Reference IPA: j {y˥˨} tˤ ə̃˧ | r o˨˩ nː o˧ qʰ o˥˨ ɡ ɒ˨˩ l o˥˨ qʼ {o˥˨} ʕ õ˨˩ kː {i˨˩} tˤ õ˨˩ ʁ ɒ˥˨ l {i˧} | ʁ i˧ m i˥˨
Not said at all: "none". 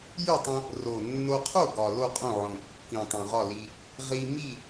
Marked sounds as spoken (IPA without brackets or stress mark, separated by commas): y˥˨, õ˥˨, ĩ˨˩, i˧